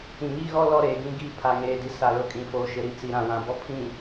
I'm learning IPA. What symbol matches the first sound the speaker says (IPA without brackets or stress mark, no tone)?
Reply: ĩ